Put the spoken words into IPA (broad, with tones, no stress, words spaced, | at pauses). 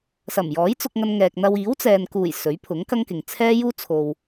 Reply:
sɐ˨˩mjɔː˨˥jt͡sʊ˧k̚ŋɐ˧n ŋɛː˨k̚n̪ɐ˧w iː˨˥wt͡sɛː˨nkuː˨˩j sɵ˨˥ɥpʰʊ˨˥ŋkɐ˥ŋkɪ˨ŋ t͡sʰɛː˥ juː˥t͡sʰo˨w